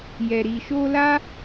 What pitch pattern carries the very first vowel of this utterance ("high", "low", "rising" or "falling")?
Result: low